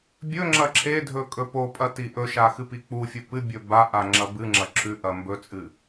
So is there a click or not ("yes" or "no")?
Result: yes